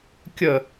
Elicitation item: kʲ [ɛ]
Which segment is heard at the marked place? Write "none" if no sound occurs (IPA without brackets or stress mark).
ə